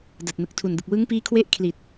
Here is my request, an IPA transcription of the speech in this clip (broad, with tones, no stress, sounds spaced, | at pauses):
d a˨˩ t̚ n ɯ˨˩ k̚ tʰ u˨˩ n d ɯ˨˩ k̚ w ɯ˦˥ ŋ p iː˦˥ kʰ w e˦˥ ʔ kʰ l i˨˩ t̚